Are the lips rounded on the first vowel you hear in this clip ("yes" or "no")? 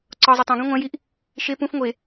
yes